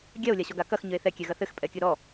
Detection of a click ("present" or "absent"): absent